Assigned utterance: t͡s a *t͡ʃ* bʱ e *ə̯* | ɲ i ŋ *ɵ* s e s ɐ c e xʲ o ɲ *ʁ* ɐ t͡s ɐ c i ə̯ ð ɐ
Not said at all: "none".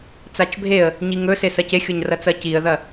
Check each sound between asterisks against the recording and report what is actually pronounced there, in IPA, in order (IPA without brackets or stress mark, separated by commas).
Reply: t͡ʃ, ə̯, ɵ, r